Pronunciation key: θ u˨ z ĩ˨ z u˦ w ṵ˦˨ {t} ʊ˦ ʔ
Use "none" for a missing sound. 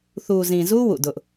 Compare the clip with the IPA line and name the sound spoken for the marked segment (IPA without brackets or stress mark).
d